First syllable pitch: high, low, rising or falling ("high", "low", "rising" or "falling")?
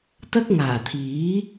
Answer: high